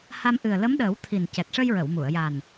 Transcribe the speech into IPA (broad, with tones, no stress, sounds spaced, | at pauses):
h a˧ m ʔ ɨ˨˩ ə̯ l ə˧˥ m ɗ əː˨˩˦ w t̪ʰ i˨˩ n c ɛ˨˩ t̚ ʂ ə˧ j ɹ ə˨˩˨ w m u˨˩˨ ə̯ j a˨˩ n